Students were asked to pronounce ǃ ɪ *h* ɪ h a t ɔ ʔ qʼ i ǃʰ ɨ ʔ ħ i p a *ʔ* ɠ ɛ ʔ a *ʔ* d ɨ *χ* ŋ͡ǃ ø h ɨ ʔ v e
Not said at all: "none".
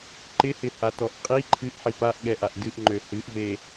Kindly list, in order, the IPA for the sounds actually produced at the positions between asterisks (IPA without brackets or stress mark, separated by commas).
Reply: h, ʔ, ʔ, ʔ